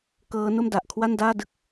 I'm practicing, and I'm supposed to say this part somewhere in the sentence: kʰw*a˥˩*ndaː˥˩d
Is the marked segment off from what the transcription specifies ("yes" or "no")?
no